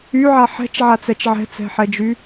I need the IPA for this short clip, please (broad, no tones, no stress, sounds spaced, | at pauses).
y ʕ a ħ ɛ̤ t͡ʃ ʕ a t͡s ɛ t͡ʃ ʕ ɛ̤ t͡s ɛ̤ ħ ɛ d͡ʒ y